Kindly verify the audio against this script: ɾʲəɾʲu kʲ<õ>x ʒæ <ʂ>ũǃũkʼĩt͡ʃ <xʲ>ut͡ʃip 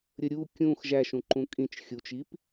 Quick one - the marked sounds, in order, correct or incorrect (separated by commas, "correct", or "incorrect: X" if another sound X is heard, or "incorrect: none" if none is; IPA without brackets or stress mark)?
incorrect: ũ, incorrect: ʃ, correct